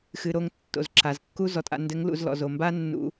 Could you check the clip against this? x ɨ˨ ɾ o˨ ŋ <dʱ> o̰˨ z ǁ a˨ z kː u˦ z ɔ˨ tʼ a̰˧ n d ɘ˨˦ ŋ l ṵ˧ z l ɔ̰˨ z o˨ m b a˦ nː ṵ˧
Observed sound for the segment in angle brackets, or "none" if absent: tː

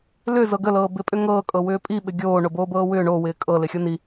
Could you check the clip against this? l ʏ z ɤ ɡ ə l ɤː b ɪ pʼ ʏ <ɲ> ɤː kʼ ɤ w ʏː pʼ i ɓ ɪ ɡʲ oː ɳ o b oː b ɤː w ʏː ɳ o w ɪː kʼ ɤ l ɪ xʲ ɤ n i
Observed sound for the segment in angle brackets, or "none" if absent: ŋ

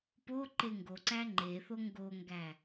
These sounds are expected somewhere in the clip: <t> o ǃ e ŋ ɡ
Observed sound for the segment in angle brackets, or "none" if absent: p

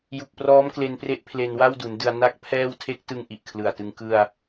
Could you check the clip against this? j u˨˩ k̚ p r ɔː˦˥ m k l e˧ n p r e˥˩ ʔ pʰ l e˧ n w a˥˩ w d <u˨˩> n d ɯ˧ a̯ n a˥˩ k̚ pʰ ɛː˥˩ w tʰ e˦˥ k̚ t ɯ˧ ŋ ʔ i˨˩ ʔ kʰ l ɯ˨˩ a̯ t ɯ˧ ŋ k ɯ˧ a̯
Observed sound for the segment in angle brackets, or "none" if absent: u˩˦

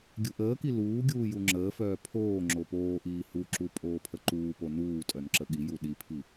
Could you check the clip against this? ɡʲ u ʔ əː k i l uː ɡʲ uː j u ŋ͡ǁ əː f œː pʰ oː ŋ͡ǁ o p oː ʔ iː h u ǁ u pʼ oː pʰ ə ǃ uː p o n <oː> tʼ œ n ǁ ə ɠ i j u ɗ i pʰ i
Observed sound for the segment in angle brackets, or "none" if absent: uː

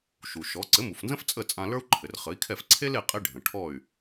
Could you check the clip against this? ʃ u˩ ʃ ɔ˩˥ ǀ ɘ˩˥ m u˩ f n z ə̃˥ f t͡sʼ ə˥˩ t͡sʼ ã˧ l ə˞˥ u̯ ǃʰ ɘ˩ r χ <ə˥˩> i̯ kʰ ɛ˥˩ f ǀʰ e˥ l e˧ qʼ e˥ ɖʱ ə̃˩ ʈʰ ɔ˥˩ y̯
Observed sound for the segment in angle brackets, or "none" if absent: ə˩˥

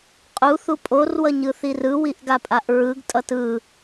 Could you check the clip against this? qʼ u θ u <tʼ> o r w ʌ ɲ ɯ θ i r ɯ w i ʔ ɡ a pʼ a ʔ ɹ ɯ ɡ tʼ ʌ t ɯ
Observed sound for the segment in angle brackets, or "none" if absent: pʼ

